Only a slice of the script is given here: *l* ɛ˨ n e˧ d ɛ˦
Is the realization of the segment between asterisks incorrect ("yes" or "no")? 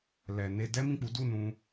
no